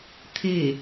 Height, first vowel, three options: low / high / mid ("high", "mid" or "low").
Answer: mid